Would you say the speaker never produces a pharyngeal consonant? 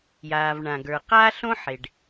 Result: no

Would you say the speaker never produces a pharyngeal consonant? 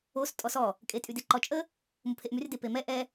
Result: yes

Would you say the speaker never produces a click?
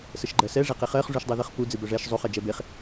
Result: no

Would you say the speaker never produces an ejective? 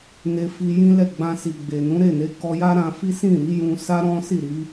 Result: yes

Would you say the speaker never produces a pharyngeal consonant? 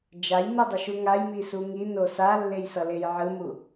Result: no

